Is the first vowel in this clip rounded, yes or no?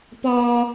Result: yes